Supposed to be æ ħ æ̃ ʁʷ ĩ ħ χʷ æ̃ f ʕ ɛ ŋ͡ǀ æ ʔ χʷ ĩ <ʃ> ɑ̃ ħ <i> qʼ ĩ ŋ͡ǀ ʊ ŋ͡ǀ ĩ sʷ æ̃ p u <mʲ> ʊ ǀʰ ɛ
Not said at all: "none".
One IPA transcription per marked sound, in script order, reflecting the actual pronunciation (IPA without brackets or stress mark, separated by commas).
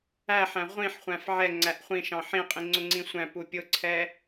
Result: ʃ, ĩ, pʲ